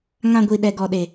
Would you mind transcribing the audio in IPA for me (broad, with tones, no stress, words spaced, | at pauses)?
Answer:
ŋã˧ɡʷi˨ ɗɛ˨ɡɔ˨ɗe˨